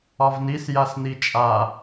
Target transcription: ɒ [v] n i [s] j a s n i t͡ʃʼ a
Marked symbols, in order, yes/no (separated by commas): yes, yes